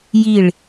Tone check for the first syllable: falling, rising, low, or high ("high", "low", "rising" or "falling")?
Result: falling